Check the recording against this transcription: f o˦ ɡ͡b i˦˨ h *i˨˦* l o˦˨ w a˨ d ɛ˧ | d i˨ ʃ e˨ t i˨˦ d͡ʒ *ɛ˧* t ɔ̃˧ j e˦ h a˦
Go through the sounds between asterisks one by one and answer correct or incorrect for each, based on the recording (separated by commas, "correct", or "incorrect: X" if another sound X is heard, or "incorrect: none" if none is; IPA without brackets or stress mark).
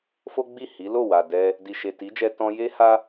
correct, correct